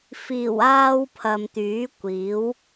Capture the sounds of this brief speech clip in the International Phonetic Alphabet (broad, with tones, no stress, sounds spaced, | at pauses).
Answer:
f iː˨˩ w aː˧ w pʰ ɐ˨ m t̪ yː˨˥ kʷ iː˨˥ w